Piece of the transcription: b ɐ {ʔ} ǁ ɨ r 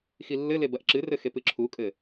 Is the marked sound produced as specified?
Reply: yes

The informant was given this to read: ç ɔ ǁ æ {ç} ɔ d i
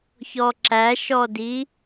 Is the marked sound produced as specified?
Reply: no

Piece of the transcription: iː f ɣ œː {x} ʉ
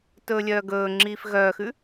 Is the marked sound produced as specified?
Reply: yes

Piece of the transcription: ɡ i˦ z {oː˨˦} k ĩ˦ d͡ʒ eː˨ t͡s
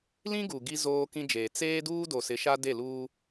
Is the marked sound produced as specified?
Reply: no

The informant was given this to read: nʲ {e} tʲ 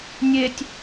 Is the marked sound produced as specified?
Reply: yes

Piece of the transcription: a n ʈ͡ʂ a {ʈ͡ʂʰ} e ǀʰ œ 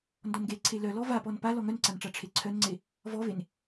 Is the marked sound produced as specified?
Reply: yes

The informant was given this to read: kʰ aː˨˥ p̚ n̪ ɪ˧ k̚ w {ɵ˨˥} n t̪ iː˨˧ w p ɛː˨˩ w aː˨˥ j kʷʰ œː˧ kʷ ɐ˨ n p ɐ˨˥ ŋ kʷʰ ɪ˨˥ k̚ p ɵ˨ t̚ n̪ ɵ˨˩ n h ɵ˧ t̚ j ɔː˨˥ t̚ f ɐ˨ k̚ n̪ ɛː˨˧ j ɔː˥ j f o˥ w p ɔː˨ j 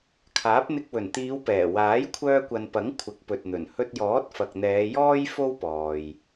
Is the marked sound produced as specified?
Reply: no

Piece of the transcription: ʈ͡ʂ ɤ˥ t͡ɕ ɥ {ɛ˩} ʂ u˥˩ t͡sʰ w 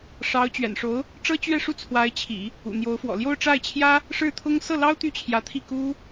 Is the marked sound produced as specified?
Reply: no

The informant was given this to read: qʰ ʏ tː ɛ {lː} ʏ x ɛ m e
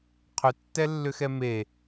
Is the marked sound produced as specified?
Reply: yes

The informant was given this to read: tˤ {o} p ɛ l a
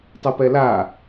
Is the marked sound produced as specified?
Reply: no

